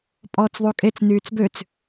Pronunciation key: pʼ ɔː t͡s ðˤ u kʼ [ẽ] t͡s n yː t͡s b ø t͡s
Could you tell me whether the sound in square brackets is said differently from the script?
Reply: yes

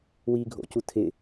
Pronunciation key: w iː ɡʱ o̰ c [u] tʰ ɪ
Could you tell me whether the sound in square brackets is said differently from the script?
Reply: no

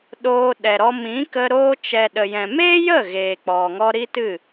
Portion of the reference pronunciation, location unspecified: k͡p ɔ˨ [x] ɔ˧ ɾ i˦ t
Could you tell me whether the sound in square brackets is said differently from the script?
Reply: yes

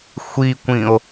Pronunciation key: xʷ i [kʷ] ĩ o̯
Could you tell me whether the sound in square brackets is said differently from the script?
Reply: no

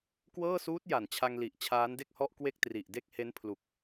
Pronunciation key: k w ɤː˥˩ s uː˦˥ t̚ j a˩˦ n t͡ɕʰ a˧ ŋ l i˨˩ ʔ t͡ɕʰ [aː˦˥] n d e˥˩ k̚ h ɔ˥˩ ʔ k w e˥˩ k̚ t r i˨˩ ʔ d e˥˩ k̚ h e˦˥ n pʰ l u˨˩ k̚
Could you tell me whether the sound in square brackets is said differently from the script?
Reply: no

